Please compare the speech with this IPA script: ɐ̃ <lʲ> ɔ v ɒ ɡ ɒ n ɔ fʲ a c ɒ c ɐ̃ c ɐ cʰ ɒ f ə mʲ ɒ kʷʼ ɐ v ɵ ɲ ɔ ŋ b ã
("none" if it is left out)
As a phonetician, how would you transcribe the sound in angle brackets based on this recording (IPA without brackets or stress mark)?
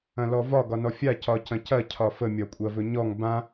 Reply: l